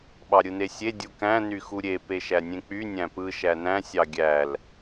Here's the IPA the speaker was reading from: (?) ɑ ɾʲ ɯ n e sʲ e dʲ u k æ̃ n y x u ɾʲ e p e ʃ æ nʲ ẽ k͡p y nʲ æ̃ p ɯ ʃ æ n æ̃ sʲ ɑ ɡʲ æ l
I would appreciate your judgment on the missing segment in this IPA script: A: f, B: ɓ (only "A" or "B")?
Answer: B